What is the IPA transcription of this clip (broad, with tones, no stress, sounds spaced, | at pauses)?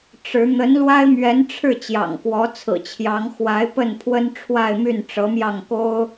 ʈ͡ʂ ɻ̩˧˥ n̪ ə˧˥ n l w a˥ ɪ̯ m ɥ ɛ˧˥ n ʈ͡ʂʰ ɻ̩˥˩ t͡ɕ j ɑ̰˨˩ ŋ k w ɔ˧˥ t͡sʰ ɹ̩˨˩ t͡ɕʰ j ɑ˧˥ ŋ x w a˧˥ ɪ̯ p ə˥˩ n pʰ w ə˥ n ʈ͡ʂʰ w a˥˧ ɪ̯ m y˥˩ n ʈ͡ʂ ɤ˧˥ m j ɑ˥˩ ŋ k o˥ ʊ̯